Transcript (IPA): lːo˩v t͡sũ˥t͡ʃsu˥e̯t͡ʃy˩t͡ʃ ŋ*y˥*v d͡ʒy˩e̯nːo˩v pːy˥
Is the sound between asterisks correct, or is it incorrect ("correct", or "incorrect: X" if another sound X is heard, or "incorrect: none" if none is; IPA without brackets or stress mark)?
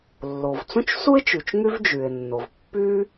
correct